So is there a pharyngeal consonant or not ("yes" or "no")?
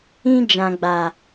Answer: no